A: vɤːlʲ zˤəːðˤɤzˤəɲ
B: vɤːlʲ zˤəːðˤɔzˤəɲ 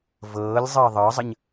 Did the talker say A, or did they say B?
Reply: A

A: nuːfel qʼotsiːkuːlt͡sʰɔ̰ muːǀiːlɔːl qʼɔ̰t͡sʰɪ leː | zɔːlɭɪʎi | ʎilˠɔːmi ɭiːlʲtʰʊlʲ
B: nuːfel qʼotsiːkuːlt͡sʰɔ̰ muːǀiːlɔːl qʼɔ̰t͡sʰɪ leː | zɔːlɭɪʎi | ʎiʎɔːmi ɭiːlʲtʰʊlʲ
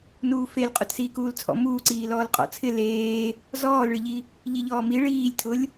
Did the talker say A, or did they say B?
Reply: B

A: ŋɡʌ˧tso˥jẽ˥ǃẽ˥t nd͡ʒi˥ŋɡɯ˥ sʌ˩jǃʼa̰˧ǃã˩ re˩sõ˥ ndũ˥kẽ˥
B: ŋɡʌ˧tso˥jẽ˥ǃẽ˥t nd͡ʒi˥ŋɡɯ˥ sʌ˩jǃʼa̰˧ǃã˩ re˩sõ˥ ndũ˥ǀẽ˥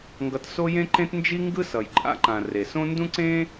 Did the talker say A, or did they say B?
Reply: B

